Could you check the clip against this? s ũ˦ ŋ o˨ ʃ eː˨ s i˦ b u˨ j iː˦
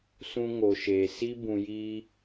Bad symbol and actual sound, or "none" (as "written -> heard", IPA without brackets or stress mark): u˨ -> ũ˨